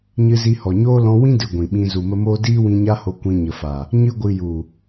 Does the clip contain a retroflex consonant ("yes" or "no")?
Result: no